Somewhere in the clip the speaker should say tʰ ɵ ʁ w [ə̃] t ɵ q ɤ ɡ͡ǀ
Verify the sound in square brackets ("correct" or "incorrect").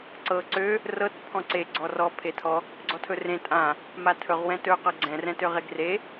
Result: incorrect